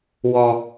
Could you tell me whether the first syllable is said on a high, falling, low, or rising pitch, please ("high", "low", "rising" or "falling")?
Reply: low